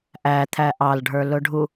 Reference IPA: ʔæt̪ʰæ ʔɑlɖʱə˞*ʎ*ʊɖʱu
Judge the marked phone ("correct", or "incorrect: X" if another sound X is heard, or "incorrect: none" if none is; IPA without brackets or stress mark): incorrect: l